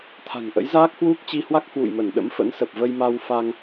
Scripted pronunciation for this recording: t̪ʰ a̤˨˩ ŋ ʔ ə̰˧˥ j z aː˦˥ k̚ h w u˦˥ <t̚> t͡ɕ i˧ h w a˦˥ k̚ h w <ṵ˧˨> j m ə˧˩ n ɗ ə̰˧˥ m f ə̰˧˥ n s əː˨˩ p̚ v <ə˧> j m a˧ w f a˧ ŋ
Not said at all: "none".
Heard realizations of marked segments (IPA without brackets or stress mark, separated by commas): k̚, ṵ˧˨, ə˧